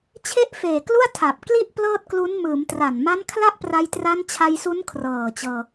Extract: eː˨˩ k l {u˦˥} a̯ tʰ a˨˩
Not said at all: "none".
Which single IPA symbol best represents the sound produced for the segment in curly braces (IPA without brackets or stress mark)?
u˥˩